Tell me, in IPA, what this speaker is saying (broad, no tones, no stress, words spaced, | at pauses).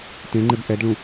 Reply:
tẽŋ͡ǃeb ʔɛdɭũ